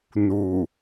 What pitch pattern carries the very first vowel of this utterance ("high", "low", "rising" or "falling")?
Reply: low